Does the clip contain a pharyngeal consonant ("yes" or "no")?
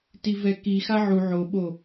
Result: yes